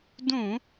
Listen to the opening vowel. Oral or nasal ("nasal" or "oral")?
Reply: nasal